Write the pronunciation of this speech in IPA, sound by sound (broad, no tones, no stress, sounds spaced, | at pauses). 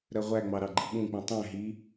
ɾ ɜ ʁʷ æ ŋ͡m ɑ ɾ ɑ ɡ͡ǃ i ɓ ũ k͡p ĩ tˤ æ̃ ɦ i